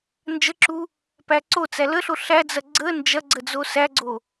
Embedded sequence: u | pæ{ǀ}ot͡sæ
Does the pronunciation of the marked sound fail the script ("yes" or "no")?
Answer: no